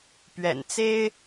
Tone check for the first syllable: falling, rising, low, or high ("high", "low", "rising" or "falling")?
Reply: low